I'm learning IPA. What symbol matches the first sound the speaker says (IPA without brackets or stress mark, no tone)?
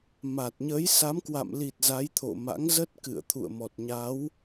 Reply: m